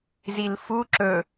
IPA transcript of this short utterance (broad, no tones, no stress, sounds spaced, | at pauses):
z i l f u ǁ ɵ